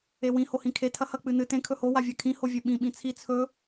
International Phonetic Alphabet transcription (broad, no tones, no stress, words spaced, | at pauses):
ewĩ hohĩkʰe tʰɐhɐ k͡pɨnɨ tẽ kʰɵho wavʲakʰĩ hovʲeɓĩ ɓĩt͡sʰi t͡sʰɵ